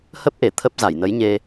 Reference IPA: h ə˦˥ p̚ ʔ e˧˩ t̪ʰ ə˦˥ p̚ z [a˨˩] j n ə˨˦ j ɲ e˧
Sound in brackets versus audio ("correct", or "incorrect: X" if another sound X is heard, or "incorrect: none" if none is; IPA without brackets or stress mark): incorrect: a˧˩